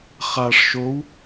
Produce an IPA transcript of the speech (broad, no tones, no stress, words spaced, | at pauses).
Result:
χaʂ ʃow